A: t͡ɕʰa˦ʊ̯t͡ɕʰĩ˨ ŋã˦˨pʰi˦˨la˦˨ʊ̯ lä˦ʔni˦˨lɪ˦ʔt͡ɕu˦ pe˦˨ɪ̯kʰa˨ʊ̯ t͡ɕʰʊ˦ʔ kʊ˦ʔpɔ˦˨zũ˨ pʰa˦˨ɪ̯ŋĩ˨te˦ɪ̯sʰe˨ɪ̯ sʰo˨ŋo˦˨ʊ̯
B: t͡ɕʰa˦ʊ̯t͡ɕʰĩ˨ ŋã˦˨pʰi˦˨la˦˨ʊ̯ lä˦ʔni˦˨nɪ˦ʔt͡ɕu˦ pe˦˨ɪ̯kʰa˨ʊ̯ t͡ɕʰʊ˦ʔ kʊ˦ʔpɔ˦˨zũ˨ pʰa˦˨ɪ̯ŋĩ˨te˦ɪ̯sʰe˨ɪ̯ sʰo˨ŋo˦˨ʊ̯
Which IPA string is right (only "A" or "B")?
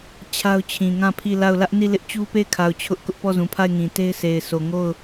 A